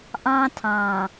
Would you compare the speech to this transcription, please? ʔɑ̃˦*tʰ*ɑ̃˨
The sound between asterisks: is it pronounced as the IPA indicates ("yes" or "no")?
yes